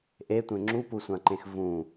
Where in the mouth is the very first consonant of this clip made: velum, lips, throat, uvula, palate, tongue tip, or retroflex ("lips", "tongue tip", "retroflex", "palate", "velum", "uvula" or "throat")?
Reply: throat